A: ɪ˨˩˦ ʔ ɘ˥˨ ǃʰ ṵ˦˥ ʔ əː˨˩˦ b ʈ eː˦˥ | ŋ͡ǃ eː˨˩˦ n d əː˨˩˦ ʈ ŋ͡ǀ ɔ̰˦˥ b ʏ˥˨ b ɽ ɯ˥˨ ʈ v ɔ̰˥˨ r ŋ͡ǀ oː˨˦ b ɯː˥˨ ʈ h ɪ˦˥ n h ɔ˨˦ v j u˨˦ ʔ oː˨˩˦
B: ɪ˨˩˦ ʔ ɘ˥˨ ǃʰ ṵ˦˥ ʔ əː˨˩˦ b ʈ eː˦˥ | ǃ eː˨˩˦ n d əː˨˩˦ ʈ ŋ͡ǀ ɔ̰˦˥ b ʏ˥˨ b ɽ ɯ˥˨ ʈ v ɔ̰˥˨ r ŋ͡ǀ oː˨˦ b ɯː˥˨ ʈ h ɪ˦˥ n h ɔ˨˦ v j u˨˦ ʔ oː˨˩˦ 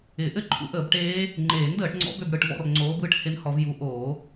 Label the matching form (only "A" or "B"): A